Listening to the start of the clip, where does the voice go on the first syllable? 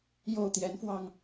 falling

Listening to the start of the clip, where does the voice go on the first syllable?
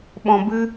low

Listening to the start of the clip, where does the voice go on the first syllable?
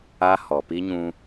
high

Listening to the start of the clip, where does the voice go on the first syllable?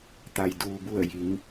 low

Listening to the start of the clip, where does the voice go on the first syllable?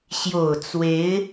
low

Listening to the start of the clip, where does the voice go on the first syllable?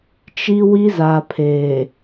high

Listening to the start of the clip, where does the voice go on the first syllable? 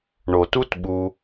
low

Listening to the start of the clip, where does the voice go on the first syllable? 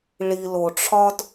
low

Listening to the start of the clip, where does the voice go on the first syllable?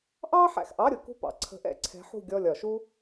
high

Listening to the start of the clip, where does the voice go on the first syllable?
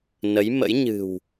rising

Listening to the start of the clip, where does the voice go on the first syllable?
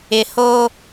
low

